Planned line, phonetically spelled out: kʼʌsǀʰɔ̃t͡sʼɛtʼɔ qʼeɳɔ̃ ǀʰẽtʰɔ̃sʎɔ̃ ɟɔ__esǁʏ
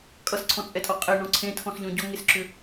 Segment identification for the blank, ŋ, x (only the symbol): ŋ